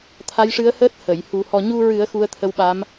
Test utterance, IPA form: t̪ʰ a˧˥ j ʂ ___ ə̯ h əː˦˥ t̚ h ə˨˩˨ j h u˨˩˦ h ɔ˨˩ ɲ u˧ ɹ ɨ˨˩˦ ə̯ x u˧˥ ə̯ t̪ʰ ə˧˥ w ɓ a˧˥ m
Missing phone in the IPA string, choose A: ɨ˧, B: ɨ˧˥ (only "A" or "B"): B